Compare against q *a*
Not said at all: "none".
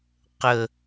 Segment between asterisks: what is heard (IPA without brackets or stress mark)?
ə